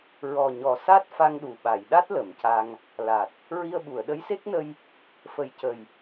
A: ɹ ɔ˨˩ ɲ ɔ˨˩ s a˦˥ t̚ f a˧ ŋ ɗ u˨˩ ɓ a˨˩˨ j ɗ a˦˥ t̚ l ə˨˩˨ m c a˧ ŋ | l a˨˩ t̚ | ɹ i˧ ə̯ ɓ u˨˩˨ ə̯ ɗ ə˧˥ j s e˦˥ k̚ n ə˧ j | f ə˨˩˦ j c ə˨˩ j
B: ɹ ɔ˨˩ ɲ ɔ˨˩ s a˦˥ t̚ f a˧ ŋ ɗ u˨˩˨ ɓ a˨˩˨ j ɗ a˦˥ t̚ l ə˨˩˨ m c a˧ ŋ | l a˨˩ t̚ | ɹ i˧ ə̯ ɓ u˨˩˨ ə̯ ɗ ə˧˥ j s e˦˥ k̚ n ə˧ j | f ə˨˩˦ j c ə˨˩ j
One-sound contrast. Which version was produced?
A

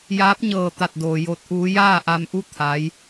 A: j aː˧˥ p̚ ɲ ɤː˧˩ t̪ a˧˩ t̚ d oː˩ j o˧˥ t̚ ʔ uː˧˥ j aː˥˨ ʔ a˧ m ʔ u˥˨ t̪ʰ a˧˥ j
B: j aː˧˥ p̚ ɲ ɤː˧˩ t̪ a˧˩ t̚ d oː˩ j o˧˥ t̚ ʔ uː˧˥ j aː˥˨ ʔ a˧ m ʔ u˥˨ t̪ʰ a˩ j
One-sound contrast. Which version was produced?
A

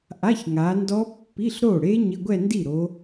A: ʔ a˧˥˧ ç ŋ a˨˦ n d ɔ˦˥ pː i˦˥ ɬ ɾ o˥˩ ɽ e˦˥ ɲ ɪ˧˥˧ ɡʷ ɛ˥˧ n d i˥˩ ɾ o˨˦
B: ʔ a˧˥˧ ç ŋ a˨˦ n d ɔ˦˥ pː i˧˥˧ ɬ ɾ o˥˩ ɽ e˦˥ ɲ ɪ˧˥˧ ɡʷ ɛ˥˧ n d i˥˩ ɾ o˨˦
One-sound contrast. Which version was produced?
B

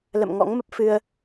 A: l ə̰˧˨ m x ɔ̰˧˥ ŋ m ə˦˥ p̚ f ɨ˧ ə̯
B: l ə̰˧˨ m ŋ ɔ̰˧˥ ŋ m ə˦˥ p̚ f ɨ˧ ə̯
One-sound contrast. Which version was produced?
B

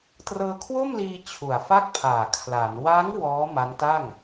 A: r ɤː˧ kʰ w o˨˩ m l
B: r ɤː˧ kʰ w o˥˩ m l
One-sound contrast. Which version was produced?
B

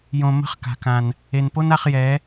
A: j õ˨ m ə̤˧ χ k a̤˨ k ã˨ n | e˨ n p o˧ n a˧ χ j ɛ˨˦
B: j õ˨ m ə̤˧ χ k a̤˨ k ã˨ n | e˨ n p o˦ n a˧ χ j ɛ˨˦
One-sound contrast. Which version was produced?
B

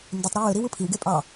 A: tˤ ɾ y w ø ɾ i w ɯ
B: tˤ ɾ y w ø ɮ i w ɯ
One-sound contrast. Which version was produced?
A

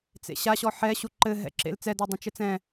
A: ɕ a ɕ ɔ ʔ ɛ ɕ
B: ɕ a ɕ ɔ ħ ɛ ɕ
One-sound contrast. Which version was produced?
B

